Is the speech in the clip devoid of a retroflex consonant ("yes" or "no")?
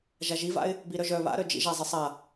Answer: yes